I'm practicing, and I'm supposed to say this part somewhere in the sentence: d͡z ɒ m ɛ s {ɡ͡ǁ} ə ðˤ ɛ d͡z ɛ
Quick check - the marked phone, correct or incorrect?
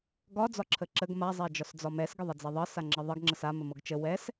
incorrect